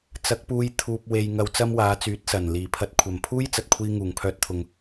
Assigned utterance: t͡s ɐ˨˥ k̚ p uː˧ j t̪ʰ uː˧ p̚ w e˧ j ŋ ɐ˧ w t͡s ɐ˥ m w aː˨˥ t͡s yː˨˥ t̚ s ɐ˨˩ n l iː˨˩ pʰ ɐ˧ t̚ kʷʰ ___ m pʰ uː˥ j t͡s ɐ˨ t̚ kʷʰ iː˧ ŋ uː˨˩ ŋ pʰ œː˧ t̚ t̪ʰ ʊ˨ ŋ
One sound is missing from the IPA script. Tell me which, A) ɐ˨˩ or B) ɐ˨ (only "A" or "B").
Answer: A